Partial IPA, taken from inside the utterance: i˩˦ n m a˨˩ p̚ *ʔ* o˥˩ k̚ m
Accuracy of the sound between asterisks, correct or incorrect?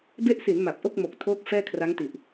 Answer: correct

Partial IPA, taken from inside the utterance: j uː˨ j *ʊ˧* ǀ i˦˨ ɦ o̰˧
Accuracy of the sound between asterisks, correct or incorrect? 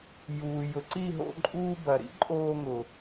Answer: incorrect: ʊ˨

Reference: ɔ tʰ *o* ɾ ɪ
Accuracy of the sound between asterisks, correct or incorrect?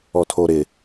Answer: correct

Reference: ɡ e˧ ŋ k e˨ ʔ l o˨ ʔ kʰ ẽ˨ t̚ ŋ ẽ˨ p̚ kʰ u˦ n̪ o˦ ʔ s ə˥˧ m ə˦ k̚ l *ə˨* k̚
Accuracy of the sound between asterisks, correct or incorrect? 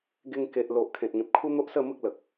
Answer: correct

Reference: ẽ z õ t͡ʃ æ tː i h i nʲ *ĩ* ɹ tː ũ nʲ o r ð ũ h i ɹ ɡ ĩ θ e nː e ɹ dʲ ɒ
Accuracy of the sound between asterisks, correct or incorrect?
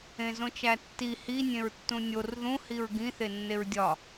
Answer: incorrect: ẽ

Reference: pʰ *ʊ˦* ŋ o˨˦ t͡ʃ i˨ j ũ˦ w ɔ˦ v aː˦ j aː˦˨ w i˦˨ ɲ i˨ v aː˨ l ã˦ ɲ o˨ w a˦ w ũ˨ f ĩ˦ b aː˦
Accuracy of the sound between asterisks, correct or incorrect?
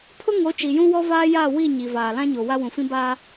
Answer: correct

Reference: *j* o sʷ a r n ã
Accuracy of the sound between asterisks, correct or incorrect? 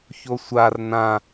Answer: incorrect: ç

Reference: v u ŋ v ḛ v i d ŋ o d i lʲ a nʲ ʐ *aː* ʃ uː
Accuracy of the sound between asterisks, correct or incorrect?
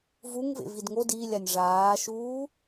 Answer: correct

